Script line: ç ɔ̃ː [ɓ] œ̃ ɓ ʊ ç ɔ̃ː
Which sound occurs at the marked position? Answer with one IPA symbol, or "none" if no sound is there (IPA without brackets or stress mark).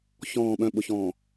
ɓ